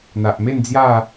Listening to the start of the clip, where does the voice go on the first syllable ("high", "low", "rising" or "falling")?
low